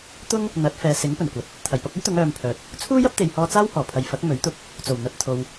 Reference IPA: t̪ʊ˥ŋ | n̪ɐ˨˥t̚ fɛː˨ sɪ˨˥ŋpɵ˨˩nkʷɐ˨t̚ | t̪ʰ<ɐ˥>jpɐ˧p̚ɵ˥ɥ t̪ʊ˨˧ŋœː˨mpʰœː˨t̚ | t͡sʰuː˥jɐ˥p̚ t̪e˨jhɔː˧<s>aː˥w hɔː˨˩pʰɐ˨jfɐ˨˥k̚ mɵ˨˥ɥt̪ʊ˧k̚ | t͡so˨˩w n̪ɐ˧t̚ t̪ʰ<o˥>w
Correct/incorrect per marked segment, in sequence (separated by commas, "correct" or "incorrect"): incorrect, incorrect, incorrect